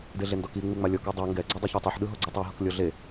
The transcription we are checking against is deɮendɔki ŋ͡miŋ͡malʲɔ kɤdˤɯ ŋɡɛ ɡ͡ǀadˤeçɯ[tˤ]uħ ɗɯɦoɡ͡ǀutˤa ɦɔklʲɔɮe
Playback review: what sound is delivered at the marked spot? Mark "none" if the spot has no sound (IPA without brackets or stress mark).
tˤ